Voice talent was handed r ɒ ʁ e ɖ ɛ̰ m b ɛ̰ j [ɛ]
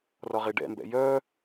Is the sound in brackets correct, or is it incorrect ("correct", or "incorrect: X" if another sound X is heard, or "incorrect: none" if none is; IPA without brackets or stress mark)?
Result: incorrect: œ